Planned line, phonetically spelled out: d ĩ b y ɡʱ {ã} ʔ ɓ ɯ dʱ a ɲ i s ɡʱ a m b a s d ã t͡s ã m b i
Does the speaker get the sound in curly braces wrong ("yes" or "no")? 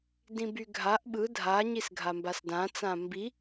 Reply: yes